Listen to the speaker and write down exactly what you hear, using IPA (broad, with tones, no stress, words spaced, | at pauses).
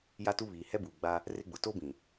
ja˦tu˦βiː˨ hɛ˦buː˨ɡ͡ba˦ | rɪ˦ɡ͡bʊ˨ to˦bĩ˨